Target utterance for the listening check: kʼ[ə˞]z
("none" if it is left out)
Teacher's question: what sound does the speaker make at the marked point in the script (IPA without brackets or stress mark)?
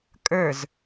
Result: ə˞